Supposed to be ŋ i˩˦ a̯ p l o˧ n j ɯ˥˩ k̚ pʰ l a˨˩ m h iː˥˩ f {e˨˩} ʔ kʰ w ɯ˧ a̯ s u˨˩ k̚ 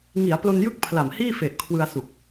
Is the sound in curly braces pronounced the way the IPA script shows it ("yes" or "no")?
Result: yes